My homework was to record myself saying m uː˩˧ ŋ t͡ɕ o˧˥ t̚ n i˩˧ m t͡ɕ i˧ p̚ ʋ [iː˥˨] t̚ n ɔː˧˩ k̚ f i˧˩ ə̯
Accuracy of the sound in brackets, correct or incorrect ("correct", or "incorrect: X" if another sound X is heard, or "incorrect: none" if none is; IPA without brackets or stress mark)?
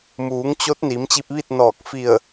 incorrect: i˥˨